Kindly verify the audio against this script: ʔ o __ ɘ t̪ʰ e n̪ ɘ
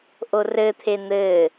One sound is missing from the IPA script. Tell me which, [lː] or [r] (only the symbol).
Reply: r